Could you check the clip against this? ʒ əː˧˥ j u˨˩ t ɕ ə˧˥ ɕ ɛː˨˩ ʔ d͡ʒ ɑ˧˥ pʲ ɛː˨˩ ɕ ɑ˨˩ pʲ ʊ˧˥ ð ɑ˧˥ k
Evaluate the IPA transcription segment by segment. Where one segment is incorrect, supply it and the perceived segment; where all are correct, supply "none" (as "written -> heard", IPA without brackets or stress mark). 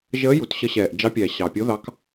none